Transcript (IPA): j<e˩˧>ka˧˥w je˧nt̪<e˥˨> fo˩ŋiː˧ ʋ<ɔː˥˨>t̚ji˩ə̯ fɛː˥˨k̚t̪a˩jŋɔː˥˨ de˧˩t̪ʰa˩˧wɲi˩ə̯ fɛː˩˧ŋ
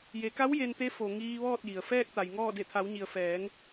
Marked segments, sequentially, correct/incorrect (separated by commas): correct, incorrect, correct